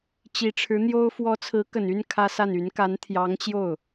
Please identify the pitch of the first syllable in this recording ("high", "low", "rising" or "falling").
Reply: rising